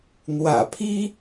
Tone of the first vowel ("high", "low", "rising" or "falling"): low